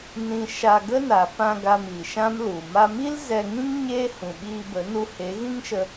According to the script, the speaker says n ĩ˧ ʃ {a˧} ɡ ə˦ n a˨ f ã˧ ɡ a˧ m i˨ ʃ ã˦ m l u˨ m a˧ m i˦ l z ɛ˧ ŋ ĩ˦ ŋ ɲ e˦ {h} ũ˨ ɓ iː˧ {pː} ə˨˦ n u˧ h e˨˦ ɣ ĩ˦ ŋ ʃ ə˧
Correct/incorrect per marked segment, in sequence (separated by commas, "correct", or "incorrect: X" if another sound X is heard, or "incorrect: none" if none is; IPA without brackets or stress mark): correct, correct, incorrect: b